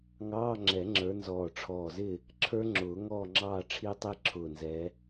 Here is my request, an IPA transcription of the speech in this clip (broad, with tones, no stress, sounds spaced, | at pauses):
ŋ ɑː˧˥˧ ŋ͡ǁ ɛ˨˩˦ ŋ͡ǁ ə˞˨˦ n z ɔː˧˩ ʈ͡ʂʰ ɔː˧˩ z ɪ˥˨ | ǁʰ ə˞˦˥ ŋ͡ǁ ʊː˨˩˦ ŋ ɔː˥˨ ŋ͡ǁ ɑː˥˨ ʈ͡ʂʰ i˦˥ tˤ i˦˥ ǁʰ ʊː˧˩ n z ɛ˨˦